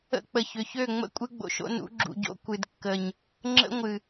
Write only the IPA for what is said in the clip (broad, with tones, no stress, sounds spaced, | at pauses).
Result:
ə̰˦ k͡p ə˨ ç ʏ˨ ç ø˦˨ ŋ͡m ə̰˦ kʷʼ ɨ˦ ɡ͡b o̰˨ ʃ o̰˦ n ṵ˨˦ ɡ͡ǁ ṵ˨ ɟ o̰˦ kʷ ɨ˨ d kː ə˨ ɲ | ŋ͡ǁ ə̰˦ ŋʷ ɨ˨